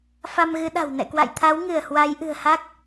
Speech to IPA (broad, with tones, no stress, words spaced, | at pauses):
fa˧mɣɨ˨˦ɗa̤˨˩w nɛ̰˧˨kwa̰˧˨jt̪ʰa˨˦w ŋɨ˧˩ə̯hwa˨˦jʔɨ̤˨˩ə̯ha˦˥k̚